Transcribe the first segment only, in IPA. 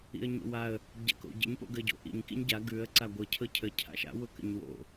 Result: ḭ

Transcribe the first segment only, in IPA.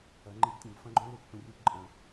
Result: ɐ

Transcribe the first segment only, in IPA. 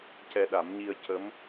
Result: c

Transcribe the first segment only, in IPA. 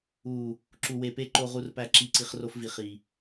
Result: u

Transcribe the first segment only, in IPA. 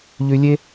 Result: ʎ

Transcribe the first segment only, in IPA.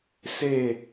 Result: s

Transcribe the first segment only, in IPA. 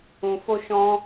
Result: ũ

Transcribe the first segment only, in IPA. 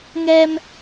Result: ŋ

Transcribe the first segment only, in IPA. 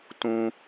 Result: t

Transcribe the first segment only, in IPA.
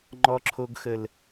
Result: ŋ͡ǃ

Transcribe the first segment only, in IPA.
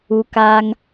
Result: u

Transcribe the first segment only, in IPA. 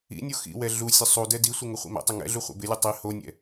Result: ḭ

